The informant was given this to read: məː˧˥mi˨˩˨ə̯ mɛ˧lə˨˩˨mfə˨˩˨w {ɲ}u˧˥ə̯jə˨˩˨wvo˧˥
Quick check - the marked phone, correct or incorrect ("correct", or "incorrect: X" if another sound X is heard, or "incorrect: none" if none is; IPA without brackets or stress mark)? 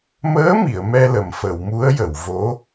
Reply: incorrect: m